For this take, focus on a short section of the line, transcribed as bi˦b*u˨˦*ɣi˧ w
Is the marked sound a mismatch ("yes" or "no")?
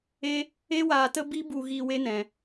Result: yes